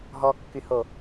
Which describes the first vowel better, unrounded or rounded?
rounded